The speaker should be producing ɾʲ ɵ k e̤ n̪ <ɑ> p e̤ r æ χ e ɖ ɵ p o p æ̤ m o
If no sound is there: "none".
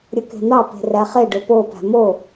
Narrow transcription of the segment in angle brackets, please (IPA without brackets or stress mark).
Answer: ɑ